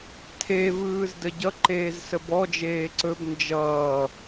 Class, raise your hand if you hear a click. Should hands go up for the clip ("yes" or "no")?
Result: yes